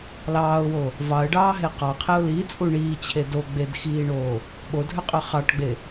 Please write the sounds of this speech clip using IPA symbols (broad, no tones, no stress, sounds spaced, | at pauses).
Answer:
l ɑː ʊ̯ w o | v ɑ ə̯ ɖ ɑː ɦ e q ɑ qʰ e ʊ̯ l i t͡sʼ u ɳ iː t͡ɕʰ e d o ɡ͡b e d x iː ɳ oː | ɓ o dʱ ø qʼ ø χ ɑ ʈ ɡ͡b e